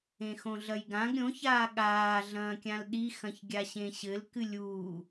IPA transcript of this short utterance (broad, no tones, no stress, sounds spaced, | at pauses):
ẽ x õ ɮ ɐ j ɡ ã ɡ ɾʲ õ ç aː ɠ aː ɮ ɐ̃ː kʲ ã l ɗ i x ɐ̃ ç ɡʲ a ɕ ẽ ɕ ɘ l k ɨ lʲ uː